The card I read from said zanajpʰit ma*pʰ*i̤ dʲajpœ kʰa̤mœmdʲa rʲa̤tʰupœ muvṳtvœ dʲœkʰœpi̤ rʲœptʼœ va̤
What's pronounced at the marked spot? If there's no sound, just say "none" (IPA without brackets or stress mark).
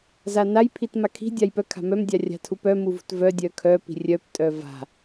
kʰ